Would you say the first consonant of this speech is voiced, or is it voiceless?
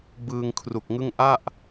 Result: voiced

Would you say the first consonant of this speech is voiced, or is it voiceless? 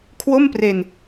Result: voiceless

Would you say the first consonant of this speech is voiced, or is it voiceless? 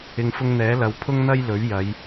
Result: voiced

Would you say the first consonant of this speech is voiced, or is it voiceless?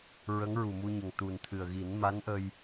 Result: voiced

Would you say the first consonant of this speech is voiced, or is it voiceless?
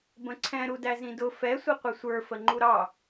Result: voiced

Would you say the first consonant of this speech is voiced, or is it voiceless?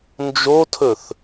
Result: voiced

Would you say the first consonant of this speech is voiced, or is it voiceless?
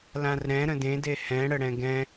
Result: voiced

